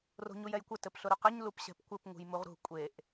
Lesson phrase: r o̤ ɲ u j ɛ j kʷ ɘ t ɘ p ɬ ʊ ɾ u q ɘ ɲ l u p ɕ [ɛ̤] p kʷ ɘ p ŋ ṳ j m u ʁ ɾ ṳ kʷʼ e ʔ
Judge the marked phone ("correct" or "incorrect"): correct